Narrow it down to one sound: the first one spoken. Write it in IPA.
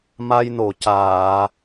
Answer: m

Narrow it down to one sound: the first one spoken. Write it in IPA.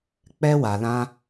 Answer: k͡p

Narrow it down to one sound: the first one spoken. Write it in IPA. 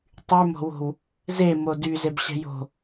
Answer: tˤ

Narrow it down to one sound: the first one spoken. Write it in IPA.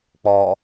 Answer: k͡p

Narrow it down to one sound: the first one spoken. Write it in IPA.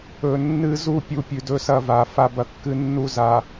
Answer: ɵ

